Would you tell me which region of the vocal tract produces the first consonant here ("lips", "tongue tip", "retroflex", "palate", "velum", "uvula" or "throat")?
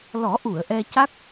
tongue tip